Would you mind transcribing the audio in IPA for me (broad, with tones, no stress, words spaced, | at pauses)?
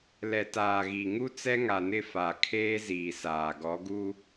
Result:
lɛ˨taː˨ɣi˨ŋu˦ t͡sɛ˦ŋa˨nɪ˦˨ fa˨kʰeː˦ziː˨ saː˨ɡɔ˨˦ɡu˦